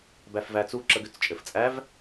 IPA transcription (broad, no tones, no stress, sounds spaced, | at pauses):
b æ f v æ t͡s u ǁ ə ɡ ʏ t͡s t͡ʃʼ ɘ f t͡sʼ æ v